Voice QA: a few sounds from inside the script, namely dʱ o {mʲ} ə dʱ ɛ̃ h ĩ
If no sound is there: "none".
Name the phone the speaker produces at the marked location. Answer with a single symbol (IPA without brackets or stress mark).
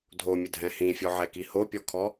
mʲ